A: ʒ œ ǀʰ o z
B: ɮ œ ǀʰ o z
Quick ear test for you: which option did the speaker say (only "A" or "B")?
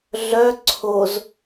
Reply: B